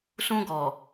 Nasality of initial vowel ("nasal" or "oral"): nasal